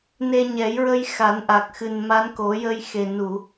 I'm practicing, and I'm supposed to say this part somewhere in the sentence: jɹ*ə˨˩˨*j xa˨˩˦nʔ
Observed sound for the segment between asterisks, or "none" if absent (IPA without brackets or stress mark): ə˧